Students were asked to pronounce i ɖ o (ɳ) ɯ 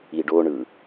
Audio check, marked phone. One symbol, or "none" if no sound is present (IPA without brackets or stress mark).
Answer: ɳ